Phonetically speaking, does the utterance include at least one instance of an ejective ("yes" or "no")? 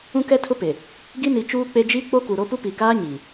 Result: no